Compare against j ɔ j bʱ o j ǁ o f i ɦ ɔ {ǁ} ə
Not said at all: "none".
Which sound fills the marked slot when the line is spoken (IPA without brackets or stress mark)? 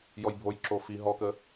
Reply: k